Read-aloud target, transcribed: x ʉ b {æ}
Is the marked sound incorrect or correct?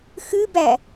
correct